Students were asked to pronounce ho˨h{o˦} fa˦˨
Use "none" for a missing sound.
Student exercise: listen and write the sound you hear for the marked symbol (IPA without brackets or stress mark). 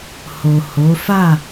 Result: o˨˦